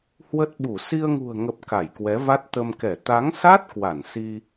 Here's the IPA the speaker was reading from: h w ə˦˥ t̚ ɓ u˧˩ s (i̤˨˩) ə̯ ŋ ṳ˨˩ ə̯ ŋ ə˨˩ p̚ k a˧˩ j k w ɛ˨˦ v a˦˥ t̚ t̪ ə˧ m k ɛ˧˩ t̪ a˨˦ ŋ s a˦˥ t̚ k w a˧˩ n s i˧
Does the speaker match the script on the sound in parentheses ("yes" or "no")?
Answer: no